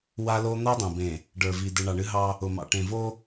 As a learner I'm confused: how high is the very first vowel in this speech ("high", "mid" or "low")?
low